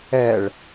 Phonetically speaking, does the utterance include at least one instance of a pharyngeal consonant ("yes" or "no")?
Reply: no